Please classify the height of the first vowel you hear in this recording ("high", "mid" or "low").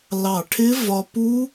low